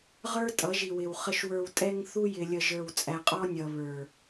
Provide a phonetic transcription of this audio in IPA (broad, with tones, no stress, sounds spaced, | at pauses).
ʁ ə˞˦ tʼ ʌ˨˦ ʒ i˨ w ɪ˨ w χ ə˨ ʃ w ə˞˨ w tʼ ɛ˦ ŋ θ u˦ j ɪ˨ lʲ ə˨ ʒ ə˞˨ w t͡sʼ æ˨ qʼ ɔ˦ nʲ ʌ˨ β ə˞˨